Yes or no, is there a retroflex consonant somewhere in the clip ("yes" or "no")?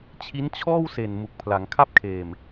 no